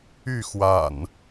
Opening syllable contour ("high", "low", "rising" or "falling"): falling